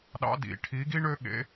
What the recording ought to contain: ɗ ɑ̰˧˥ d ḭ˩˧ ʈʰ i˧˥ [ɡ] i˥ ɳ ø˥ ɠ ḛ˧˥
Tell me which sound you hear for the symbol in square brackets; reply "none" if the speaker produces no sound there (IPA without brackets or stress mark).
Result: ɡ